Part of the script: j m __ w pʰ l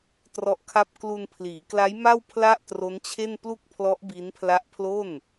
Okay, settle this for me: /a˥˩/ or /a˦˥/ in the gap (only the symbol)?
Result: a˥˩